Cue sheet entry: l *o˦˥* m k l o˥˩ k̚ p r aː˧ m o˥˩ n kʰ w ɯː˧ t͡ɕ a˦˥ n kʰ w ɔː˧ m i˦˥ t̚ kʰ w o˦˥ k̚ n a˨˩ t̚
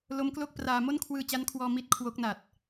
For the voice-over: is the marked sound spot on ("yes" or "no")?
yes